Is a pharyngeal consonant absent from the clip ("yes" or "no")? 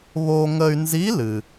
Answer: yes